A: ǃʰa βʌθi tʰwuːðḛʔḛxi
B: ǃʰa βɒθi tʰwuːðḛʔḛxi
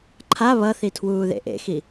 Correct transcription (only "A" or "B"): A